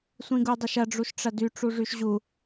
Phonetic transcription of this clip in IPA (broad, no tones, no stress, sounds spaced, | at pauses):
sʷ ĩ ɡ u dˤ ɐ ʃ ɐ ɖ͡ʐ u ʃ ʈ͡ʂ ɐ d y ʈ͡ʂ u ʐ y ʃ ʑ u